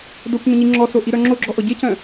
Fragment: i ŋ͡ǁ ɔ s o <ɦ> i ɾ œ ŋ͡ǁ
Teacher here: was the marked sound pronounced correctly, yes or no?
no